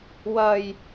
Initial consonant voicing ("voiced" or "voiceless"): voiced